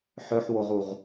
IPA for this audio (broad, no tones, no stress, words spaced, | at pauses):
ħœħwoʁuʁ